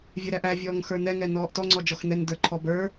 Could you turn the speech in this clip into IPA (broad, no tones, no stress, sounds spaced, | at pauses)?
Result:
vʲ ɛ ɾ æ ʔ æ vʲ ɔː ŋ x ə˞ n ɛ ŋ ɛ n ɔː ʔ t ɔ ŋ͡ǀ ɔ d͡ʒ ɔ x n ɛ n d ə˞ ǃʰ ɔ b ə˞